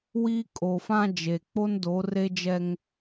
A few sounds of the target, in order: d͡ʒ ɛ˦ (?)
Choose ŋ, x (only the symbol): ŋ